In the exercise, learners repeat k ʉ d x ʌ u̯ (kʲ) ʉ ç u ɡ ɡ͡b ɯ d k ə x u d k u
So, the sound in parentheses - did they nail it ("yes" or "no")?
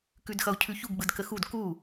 no